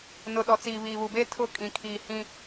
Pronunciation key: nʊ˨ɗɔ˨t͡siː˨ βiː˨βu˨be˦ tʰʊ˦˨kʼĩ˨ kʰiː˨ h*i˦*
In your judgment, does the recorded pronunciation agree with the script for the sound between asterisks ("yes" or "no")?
no